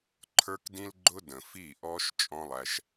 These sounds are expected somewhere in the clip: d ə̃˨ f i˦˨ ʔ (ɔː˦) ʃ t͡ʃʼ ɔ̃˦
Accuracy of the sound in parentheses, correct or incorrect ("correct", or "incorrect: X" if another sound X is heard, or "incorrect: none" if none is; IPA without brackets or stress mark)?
correct